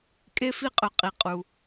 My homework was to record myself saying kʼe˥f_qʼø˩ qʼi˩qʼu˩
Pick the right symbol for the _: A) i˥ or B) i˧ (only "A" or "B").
A